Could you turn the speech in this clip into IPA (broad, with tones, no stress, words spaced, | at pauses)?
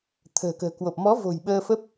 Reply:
t̪ʰə̤ː˨˩kə̤ː˨˩kwo˨˩p̚ mɔ˨˦vo̤˨˩j ɓəː˧fə˦˥p̚